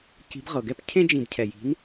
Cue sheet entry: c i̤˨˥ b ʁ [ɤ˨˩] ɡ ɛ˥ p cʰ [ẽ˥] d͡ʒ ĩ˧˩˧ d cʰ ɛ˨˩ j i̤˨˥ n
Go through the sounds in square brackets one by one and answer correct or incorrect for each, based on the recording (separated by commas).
correct, correct